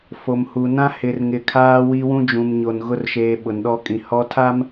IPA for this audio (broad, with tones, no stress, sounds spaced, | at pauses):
f o˨ m h u˨ n ã˦ h ɪ˨ r ŋ ɪ˨ kʰ aː˦ w i˦ w ũ˦ d͡ʒ ũ˨ m ɲ o˨ n ɣ ʊ˦ r ʃ eː˨ ɓ ʊ˨ n ɗ ɔ˦ kʼ ĩ˨ h ɔ˦ tʰ a˦ m